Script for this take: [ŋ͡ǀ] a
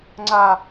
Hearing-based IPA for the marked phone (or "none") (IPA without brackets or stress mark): ŋ͡ǀ